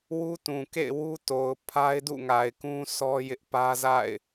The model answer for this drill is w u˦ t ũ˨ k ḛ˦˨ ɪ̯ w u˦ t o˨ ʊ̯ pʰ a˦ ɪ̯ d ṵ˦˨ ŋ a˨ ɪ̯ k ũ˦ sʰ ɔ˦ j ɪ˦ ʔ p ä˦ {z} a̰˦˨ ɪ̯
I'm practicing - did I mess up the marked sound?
no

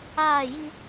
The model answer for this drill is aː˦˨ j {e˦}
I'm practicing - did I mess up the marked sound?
yes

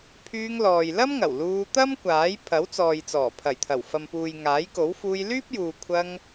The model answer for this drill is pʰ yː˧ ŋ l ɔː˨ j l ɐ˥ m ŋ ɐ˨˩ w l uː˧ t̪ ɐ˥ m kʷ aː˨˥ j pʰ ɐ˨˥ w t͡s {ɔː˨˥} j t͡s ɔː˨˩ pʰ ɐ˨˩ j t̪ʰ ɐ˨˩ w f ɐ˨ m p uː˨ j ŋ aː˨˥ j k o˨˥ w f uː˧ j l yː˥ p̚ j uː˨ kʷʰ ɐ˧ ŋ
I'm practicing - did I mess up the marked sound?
yes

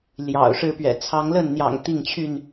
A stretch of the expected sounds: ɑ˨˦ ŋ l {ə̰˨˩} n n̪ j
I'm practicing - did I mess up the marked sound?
yes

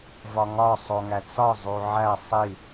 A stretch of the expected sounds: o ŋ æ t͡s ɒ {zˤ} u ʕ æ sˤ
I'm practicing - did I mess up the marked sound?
no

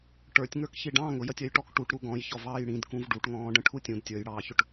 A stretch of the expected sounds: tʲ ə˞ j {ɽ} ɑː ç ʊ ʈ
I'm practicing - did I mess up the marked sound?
no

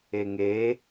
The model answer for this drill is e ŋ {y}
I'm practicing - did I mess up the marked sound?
yes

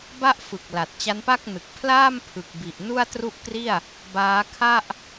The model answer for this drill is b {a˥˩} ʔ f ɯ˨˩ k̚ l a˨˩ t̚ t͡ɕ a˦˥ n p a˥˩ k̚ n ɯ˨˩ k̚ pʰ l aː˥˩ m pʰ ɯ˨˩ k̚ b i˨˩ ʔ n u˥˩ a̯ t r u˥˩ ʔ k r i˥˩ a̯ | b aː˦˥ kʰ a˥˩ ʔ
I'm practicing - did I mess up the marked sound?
no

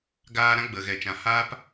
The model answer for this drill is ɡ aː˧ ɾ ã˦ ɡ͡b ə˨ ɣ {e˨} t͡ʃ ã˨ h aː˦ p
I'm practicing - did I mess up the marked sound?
yes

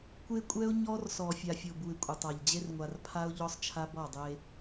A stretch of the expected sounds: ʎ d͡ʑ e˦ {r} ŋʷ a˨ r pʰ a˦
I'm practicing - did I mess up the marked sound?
no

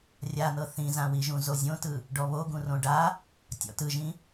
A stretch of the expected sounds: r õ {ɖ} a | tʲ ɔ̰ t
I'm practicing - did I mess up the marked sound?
no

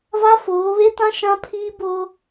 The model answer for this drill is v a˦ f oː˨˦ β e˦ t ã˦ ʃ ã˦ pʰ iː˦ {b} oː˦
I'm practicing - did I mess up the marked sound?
no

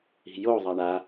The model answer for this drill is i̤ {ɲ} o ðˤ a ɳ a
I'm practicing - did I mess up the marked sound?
yes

